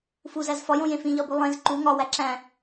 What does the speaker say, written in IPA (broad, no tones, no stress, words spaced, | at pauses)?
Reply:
fuzæz fɒjõjẽ fĩʎɒbu lˠẽz ǃu ŋɒwæ ǁæ̃